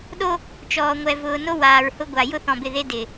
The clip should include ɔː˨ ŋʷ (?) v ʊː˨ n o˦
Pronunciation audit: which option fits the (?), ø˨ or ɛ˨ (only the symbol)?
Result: ɛ˨